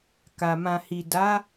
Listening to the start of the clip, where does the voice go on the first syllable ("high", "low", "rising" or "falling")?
low